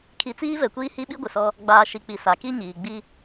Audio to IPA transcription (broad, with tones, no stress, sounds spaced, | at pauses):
kʰ i˨˦ t͡s iː˦ v ɛ˨ kʷ iː˦ h i˦ ɓ i˦ ɡʷ ɪ˨ s ɔ˦ | ɡ͡b aː˨ ʃ i˨ k͡p i˨ s a˨ k i˦ ɲ iː˨ ɡ͡b i˦